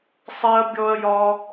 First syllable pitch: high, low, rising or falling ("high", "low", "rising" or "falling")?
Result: high